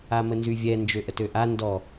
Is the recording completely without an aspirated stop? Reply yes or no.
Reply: yes